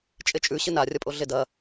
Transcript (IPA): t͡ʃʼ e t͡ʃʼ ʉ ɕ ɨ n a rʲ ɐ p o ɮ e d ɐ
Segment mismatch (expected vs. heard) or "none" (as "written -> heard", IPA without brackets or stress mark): p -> pʼ